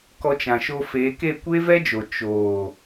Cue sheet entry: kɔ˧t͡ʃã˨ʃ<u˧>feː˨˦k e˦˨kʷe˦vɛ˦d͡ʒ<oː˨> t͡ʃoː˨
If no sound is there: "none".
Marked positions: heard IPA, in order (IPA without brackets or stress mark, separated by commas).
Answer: o˧, o˨